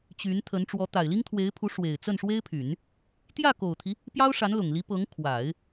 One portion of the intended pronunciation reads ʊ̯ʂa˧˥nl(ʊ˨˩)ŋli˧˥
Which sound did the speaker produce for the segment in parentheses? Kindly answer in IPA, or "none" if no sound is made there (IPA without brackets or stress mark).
ʊ˨˩